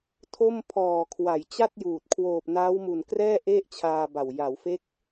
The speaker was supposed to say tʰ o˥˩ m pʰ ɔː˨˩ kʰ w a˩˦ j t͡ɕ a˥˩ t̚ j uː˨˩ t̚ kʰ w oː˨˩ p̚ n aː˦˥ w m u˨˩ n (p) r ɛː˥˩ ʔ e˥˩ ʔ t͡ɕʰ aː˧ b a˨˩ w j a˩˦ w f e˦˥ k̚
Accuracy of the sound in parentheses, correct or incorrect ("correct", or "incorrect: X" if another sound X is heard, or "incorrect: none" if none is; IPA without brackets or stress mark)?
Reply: incorrect: k